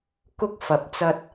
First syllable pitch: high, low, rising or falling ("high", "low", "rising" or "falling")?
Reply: high